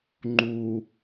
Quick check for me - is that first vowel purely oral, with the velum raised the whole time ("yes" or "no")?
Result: yes